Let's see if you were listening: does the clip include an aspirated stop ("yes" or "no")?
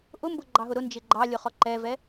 no